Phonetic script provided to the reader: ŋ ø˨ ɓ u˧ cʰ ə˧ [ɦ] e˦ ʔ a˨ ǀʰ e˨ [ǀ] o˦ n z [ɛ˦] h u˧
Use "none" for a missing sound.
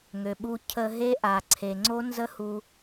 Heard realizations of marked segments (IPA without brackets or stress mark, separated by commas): ɦ, ŋ͡ǀ, ə˦